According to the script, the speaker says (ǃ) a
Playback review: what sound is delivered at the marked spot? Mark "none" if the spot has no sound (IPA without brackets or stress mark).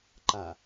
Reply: ǃ